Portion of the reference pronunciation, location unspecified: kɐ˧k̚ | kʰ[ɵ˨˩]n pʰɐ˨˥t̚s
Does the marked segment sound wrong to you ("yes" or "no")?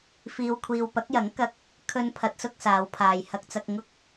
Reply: yes